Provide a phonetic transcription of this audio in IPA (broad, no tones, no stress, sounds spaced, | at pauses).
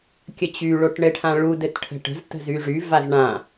kʲ ɘ t͡ɕ y ɭ o ʈ ɳ ɘ ʈʰ ã ɭ u d ɘ t ʈʰ ə̤ ʈ ə̤ z t ə̤ z y ʐ y v a z ɳ ã